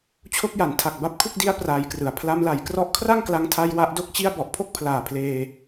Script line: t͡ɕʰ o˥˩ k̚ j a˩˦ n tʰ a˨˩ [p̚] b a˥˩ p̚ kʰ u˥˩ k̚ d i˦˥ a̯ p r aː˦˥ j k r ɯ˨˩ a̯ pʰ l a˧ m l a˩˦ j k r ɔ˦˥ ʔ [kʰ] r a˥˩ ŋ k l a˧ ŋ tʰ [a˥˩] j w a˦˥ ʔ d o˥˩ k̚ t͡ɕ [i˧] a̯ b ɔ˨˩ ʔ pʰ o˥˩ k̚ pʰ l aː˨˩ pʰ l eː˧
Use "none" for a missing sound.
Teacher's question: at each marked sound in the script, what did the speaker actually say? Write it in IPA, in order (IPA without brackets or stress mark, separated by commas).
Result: k̚, kʰ, a˧, i˥˩